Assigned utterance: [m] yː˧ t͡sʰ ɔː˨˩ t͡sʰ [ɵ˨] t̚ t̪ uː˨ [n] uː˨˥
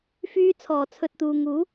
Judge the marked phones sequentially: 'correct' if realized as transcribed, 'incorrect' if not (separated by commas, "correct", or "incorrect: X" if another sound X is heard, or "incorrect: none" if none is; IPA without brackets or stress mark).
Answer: incorrect: f, correct, incorrect: ŋ